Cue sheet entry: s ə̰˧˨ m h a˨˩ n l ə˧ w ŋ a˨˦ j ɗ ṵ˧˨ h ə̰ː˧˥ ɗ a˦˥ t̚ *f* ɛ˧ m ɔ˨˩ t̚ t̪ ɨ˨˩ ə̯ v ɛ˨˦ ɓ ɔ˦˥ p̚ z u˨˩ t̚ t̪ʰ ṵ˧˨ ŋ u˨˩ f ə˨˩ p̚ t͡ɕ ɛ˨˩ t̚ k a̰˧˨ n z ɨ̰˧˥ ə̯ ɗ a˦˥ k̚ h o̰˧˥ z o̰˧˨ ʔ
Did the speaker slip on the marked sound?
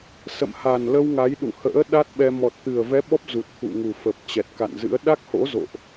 yes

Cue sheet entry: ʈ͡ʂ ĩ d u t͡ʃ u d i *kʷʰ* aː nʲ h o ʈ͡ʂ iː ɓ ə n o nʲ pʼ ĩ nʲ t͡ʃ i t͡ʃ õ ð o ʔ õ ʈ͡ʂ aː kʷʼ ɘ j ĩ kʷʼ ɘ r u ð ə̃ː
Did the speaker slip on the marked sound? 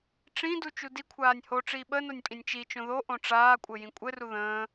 no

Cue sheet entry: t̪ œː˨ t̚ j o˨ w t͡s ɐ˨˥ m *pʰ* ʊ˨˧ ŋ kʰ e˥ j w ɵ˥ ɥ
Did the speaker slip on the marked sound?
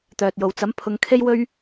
no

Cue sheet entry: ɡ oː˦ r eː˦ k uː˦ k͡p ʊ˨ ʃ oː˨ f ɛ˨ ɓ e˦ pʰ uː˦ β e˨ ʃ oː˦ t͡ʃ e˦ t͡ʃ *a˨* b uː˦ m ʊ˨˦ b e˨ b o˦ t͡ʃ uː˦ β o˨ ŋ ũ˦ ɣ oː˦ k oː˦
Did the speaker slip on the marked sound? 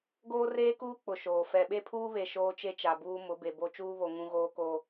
no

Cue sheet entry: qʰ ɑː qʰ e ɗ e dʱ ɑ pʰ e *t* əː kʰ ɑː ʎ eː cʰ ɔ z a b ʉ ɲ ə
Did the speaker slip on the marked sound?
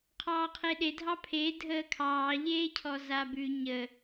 yes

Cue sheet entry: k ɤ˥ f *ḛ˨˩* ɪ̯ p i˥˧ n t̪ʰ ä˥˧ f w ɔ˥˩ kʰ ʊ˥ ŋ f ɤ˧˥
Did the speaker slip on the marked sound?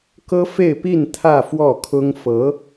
yes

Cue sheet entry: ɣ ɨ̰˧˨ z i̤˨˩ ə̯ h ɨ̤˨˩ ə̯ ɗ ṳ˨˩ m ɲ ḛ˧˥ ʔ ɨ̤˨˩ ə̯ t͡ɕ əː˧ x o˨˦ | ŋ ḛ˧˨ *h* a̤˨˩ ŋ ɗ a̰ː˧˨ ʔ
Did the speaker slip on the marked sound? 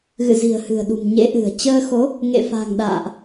yes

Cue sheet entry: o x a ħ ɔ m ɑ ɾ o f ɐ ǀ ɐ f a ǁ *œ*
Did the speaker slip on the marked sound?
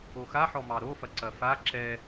yes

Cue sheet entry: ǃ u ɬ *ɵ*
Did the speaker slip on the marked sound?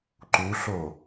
yes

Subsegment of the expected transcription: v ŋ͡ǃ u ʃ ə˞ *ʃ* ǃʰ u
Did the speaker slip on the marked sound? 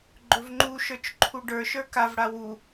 yes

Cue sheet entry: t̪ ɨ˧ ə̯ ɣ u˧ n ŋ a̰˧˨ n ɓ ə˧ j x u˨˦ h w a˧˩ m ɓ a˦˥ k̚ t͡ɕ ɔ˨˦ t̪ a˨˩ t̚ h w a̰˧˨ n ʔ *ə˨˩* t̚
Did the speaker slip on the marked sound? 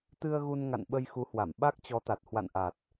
yes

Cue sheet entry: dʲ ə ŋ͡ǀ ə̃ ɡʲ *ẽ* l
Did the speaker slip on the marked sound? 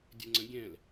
yes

